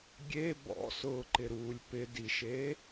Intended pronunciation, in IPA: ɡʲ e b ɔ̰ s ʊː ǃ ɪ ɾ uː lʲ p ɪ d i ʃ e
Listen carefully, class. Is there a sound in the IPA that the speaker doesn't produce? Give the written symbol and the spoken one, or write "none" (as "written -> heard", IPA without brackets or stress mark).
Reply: none